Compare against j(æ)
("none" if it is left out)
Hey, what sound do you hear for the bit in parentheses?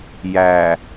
æ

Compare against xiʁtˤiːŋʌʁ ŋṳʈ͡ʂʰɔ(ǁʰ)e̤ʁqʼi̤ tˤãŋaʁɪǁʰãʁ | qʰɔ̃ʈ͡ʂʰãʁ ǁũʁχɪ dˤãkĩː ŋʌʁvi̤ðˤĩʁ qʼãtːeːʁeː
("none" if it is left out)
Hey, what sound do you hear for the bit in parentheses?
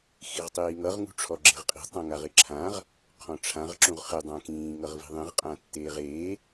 ɡ͡ǁ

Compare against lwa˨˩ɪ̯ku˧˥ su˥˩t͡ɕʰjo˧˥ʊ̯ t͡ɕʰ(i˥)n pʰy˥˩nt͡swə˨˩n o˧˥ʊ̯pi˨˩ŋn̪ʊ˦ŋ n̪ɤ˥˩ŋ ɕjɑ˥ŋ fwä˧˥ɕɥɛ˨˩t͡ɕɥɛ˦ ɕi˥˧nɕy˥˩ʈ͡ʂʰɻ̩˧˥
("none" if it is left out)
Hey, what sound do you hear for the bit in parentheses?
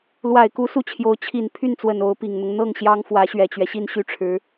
i˨˩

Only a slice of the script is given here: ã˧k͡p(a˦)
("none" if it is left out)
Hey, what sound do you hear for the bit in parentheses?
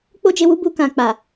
a˨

